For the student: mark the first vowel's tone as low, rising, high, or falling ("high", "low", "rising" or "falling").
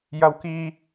high